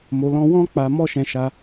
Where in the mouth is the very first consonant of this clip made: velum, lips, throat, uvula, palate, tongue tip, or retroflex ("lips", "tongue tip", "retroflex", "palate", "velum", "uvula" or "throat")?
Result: lips